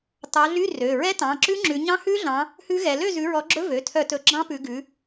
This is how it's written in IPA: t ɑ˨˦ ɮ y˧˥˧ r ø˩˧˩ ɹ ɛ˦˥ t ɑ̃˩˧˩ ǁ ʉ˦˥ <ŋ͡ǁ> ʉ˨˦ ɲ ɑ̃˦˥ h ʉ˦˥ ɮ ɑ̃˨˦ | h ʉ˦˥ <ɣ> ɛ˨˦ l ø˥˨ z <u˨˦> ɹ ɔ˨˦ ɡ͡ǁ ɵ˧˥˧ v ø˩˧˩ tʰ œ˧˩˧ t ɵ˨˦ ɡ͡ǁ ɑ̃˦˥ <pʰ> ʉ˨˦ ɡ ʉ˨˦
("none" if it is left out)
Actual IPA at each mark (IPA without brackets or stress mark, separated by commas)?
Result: ŋ͡ǁ, ɣ, ʉ˨˦, p